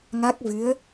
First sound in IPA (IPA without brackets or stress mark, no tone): ŋ